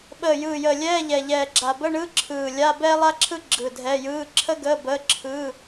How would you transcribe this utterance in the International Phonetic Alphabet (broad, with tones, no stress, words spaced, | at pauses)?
ɓəː˧˩ jɯː˧˩jəː˧˩ lʲɛː˧˥˧ ʎɛ˧˩ʎɛː˧˩ɡ͡ǁa˧˩ bə˧˥˧ɳɯ˧˥˧ ǁʰɯː˧˩ lʲa˧˥˧ bɛː˥lˠa˥ǁʰɯ˥ ɡ͡ǁɯ˧˩dʱɛ˧˥˧jɯː˧˥˧ ǁʰə˥ɡəː˧˥˧ bəː˧˥˧ǁʰɯː˧˥˧